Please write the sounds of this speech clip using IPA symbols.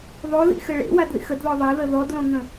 ðˤoðḭxɘ ɭḛwadðḭx ədðɔ ðˤaðə ðɔdlõŋə̃

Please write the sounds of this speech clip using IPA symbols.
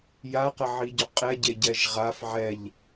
jaqəʕiɟɵ qʼɛɟeɟɛʒ ʁaf ʕɛʎ

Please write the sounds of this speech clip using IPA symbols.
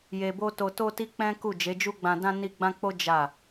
je˧bo˦ to˧to˦ti˦ k͡pɛ̃˦ku˦˨ d͡ʒe˨˦d͡ʒu˦ɡ͡bã˧dã˦ ni˦ ɡ͡bã˦k͡po˦ d͡ʒa˦˨

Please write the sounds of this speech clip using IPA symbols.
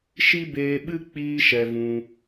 ʃi˦beː˧ɓɨ˦ k͡piː˦ʃɛ˧vũ˧

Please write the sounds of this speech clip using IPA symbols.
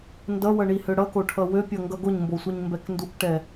ndʌwʌɳihø ɽʌkoʈʰʌ wøpʲʌŋɡʌ ɡoɲmbosʷiɲmbɛk ndukʈɛ

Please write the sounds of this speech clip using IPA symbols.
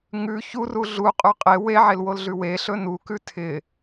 ŋʉ çuru ɮuqʼʉ qʼe weʕelwolɮʉ weɬɵ nukʉ tʰɪ

